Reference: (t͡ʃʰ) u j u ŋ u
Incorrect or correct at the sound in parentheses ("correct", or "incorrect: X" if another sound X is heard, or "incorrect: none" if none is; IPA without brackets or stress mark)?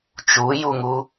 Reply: incorrect: t͡ʃ